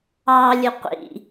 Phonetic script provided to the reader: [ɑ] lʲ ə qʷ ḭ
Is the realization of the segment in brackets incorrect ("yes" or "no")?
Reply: no